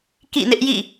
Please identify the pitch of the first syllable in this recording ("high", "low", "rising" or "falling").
falling